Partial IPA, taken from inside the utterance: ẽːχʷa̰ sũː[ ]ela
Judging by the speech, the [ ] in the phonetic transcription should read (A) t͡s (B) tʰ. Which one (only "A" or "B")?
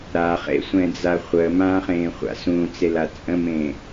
A